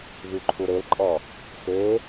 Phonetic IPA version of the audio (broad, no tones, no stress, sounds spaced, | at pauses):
β y ǃʰ u ɾ e l ǃʼ ɔ | x e